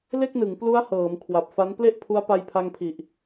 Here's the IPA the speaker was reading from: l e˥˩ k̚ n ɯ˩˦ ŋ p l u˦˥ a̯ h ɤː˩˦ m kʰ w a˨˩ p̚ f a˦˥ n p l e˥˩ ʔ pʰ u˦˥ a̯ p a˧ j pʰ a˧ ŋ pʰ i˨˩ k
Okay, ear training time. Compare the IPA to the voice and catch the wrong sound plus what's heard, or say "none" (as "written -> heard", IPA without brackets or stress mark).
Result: k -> ʔ